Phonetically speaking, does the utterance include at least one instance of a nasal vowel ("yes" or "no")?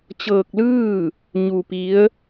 no